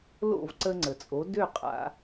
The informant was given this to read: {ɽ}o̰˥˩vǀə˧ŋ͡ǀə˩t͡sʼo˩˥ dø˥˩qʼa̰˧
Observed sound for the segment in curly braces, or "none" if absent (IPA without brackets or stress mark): l